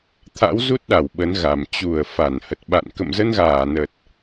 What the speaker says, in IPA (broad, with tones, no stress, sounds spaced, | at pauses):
t̪ʰ a̰˧˥ w z u˦˥ t̚ ɗ a˧˩ w ɓ ə˨˦ n ɣ a˨˩ m t͡ɕ u˧˩ ə̯ f a˧˩ n h ə˨˩ t̚ ɓ a̰˧˨ n k ə̰˧˨ m z ə˧ n ɣ aː˧˩ n ə˨˩ t̚